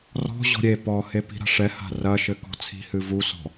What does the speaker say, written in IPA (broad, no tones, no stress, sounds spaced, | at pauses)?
r ɔ̤ ʑ ɔ̤ ɾʲ e p ɔ h e p i̤ ɾ a̤ ʂ ɛ h a̤ r ɐ ʃ ɘ k ɔ̤ t͡sʰ i̤ h ɨ v u s ɔ̤